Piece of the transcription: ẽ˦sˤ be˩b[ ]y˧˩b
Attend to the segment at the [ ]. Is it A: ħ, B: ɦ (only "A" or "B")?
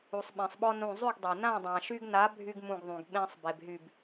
B